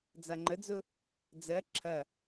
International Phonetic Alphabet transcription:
d͡zaŋ͡ǃəd͡zʊ | d͡zɜ ǁʰɐ

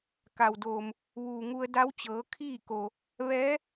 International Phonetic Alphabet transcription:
ka˩wdoː˩m | ʋuː˩ŋu˧ə̯da˧˥wt͡ɕɤː˩˧ kʰiː˥˨ko˩ | ʋɛː˧˥

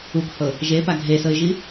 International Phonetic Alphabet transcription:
ukhɤ | ʒepa ɡʱesɤɪ̯ʒi

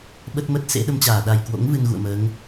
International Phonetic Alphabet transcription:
ɓə˦˥t̚mə˦˥t̚ sḛ˧˥ɗə˧mt͡ɕaː˧˩ ɗa˨˩jkwo̰˧˥ŋ vɨ˧nɣṵ˧˨ə̯məː˨˦ŋ

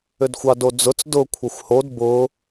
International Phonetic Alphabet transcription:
ʏdxʷɑdod͡zʊt͡s dʊ kʷʰaxʷhod bʊ

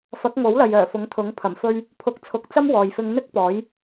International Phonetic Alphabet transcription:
fɐ˨˥k̚ŋo˨˥wlɐ˨j œː˨˩fʊ˨˥ŋt̪ʰʊ˨˥ŋ pʰɐ˨˩mfɵ˧ɥ | pʰʊ˧k̚t͡sʰʊ˧k̚t͡sɐ˥m wɔː˨jfɪ˧ŋn̪ɪ˥k̚pɔː˨˥j

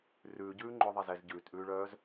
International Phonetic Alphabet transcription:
rʉːɟʉː ŋ͡ǃʊðˤɛz ɛz ɟʉːtʔʉːɭœːz

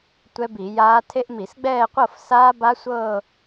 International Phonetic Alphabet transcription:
tʷɛ˦˥bi˧˩˧jaː˦˥ tʰe˦˥ʔmi˧˩˧sɡ͡bɛː˥˧qʷɤ˥˧f saː˦˥ba˦˥sʷɤː˥˧

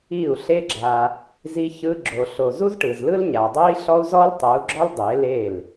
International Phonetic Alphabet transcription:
i˦˨u̯ɬe˦ɡ͡ǁa˧ | zi˦çɯ˦ɡ͡ǁo˧ɬo˧ zu˦zʈɯ˨zlɯ˦lɲa˨ dˤo˦i̯ɬɔ˦u̯zɔ˦l tˤo˨˦u̯ɡ͡ǁɔ˦l dˤe˨˦le˦˨l

